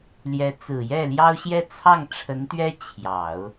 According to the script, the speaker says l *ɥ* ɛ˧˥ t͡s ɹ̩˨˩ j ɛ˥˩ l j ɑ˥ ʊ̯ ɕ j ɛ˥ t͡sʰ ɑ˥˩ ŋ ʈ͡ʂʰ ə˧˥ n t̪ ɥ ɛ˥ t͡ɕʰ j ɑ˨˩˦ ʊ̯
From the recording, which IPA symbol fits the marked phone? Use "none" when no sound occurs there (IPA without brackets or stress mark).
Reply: j